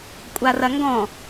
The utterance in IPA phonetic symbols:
kʷʼarɐŋɡɔ̃

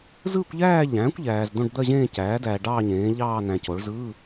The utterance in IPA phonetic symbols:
zɯː˥˧kʷʎæː˥˧ʎæ̃ː˩˥kʷ ʎæː˨z d̪õ˥˧ɖd̪ɜ˥˧ʑẽː˥˧ cæː˩˥dæː˨ ɖɑː˥˧ɲẽː˩˥ ʎɑː˥˧næ̃˨co˩˥ɭ zɯː˧˥˧

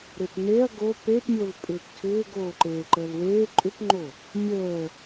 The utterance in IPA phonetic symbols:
ɾɪtneɐ̯ ɡo pepmʲol pʼʏːptʰʏːɡ oːǃeːǃəːlweː ǃʼʏpŋ͡ǃo | mʲəː

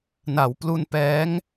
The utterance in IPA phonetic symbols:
na˩˦wplu˧npɛː˦˥ŋ

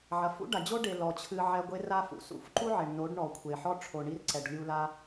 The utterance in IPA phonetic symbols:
ʕɐ˨fṵ˦ ɖa˨d͡ʑo˦ ɖe˧ lɔ˨t͡ɕʰɨ˧ ʕɛ˧ɡʷe˦ra˦fṵ˨ sṵ˧fǃu˦ ʕe˨ɳno˨˦ɖ ɳɔ˨kʷʰe˨ ħɔ˦ʈ͡ʂʰo˨ɳi˧r ǀɛ˨ɖlʲu˧ la˦

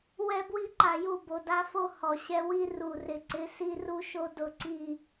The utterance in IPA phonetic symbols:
wɛ˦bwi˦ǃa˨ju˦˨ bo˨da˦fo˦ hɔ˨ɕɛ˦ wi˦ ru˨rɪ˨ǀɪ˨˦ si˦ ru˦ʃo˦ dʊ˦˨ǀi˦˨

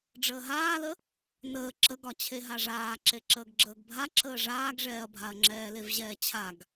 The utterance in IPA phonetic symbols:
ɖ͡ʐəːɦaːlə | nəː ǁəɡɒ t͡ɕʰeɦaʐaː ǁeǁəːɡɡ͡ǁəːɡbʱa ǁəːʐaːɡʐɛːɐ̯bʱaɐ̯ ŋ͡ǁɛːlevʑɛːt͡ɕʰaɡ

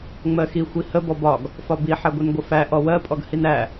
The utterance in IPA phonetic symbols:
ŋ͡mɜxi xʷihə bɔbɒɡ | fɒbi ħɛɡʷinɡʷəfæ ʔɔwɜ pʼɔɡhinæ

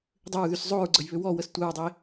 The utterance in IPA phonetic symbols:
dˤʏɹðys zˤoɹɡ͡ǀəjβʏ wɔwəs tʷəɹdˤe

